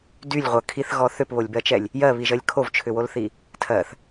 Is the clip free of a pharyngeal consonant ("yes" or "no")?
yes